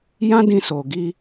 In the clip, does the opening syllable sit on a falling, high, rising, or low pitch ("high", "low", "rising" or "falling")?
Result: high